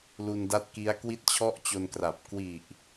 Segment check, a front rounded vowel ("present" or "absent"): absent